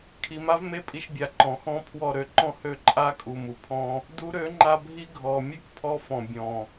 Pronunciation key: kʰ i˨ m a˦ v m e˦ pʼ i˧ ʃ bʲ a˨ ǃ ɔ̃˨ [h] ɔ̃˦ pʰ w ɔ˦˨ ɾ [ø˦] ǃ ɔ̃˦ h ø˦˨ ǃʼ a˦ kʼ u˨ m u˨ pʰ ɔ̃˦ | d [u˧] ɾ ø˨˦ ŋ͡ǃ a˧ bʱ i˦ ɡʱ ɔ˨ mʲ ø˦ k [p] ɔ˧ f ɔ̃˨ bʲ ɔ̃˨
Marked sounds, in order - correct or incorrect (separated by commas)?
incorrect, incorrect, correct, incorrect